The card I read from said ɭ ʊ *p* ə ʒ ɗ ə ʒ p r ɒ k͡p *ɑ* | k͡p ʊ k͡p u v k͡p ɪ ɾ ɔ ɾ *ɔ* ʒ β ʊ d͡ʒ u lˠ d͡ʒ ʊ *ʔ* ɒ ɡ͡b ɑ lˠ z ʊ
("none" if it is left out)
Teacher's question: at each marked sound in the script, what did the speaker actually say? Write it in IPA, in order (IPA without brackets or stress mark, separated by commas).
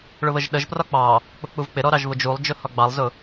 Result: β, ɑ, ɑ, h